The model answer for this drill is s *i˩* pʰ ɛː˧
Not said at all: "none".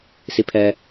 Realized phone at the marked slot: i˧˥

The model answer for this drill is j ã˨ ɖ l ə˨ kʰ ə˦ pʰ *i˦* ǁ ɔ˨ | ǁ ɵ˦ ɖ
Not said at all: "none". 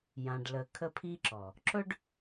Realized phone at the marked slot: i˦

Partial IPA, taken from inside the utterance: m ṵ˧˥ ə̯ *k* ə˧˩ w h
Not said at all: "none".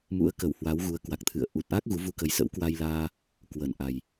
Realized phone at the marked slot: k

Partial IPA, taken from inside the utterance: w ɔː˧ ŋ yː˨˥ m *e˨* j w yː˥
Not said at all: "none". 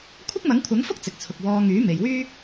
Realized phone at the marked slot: e˨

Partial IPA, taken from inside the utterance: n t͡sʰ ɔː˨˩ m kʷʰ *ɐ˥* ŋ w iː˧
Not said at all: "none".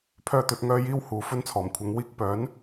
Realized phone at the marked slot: ɐ˨˥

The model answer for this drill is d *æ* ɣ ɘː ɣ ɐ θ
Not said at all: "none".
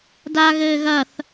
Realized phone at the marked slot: a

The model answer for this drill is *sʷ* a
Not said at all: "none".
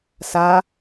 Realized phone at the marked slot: s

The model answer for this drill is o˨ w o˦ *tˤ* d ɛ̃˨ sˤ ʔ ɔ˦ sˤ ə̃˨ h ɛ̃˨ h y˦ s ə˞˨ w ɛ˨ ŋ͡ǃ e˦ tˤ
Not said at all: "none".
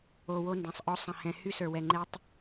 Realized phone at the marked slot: n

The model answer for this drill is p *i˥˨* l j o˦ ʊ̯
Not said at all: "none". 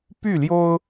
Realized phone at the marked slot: y˥˨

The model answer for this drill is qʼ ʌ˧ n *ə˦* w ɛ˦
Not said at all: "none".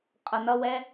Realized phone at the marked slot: ʌ˦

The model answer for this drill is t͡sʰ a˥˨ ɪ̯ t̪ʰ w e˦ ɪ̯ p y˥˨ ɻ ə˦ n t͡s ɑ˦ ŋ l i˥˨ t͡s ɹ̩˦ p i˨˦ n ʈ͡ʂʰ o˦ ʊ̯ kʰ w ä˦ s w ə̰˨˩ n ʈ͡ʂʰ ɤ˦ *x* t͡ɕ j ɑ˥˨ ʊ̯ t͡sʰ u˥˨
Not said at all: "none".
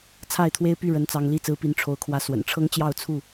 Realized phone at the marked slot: ŋ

